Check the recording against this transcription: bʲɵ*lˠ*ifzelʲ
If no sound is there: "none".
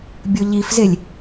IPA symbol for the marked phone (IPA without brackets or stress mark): ʎ